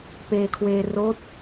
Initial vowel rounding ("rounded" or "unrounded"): unrounded